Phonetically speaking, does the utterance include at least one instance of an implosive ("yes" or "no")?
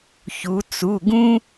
no